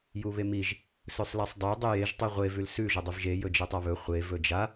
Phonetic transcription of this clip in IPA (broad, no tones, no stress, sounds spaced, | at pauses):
j u β e m i ʒ | s ɵ sˤ l a sˤ dˤ ɵ dˤ ʉ j e ʒ tˤ u ʁʷ e v ʉ l s ʉ ʒ ɵ dˤ ʉ v ʒ e j ɵ d͡ʒ e tˤ a β ɵ χʷ e v ɵ d͡ʒ a